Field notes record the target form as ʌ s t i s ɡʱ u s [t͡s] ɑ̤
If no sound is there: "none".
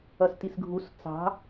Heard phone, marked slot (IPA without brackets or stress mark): t͡s